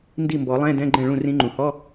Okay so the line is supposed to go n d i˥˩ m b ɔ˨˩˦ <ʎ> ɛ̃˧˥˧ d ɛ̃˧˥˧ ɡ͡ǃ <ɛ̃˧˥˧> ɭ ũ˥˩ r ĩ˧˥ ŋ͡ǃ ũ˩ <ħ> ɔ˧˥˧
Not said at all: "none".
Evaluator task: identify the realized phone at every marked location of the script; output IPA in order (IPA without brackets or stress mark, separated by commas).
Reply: lˠ, ɛ̃˥˩, h